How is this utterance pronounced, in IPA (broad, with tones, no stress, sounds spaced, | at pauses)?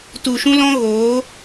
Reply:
t u˨ ʃ ũ˦ l ɔ̃˦ ɣ oː˨˦